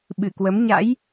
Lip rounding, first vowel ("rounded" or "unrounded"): unrounded